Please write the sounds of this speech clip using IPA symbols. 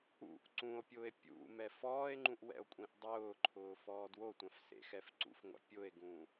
ṵʔ ǀũo̯pʲʊːe̯ pʲṵ mɛfɔːe̯ŋ͡ǃũʔ wɛ̰o̯kʷʼĩʔdˤʊːǃʰʊː fɔːdwotʷãf sḛxɛfǀṵfŋʷa̰ pʲʊe̯ɡũ

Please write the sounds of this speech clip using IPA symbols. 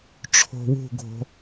ʈ͡ʂʰo̤wṳɡʱo̤

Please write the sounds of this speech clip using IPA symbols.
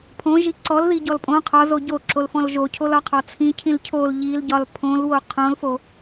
pʰõʒi ǀɔlðiɟɔl pʼõ qʰɒzo ɟoǁolfɔ̃l ʒocʰolɒqʰɒ t͡sʰĩcʰĩl cʰol ʎilɟɒl pʰõlwo qʰõlfo

